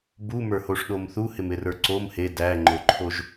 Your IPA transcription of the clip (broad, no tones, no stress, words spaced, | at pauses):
bu mə˞hoʂɗomθu hɪmɪrə˞ǀom he dæŋ͡ǃoǃʰoʒ